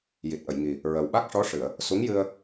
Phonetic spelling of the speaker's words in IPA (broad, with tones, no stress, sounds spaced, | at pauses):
j i˨˩ t̚ ʔ ə˨˩˨ j ŋ i˨˩ | ɹ ə˨˩ w ɓ a˦˥ k̚ ʂ ɔ˧˥ ʂ ɨ˨˩˨ ə̯ | s u˧˥ ŋ j ɨ˧ ə̯